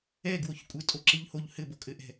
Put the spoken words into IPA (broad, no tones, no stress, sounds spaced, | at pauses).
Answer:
ɛ ɡ w o ç kʷʼ ɘ tʼ o ǁ e ʎ h o ʎ h ɘ b o kʼ ɘ ʔ ɛ̤